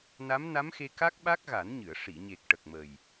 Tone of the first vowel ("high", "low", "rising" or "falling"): rising